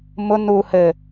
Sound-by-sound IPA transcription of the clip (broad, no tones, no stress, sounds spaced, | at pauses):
m ʊ n u h ɘ